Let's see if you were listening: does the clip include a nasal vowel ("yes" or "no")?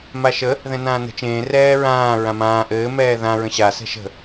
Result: yes